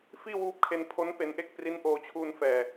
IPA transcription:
f iː˥˩ w uː˦˥ p̚ kʰ e˧ n pʰ o˦˥ n p e˧ n ʔ e˥˩ k̚ p r i˦˥ n ʔ oː˧ t͡ɕʰ uː˧ n f ɛː˨˩

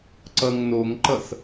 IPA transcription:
ǀ ʌ ŋ n o ŋ ǃ ʌ s

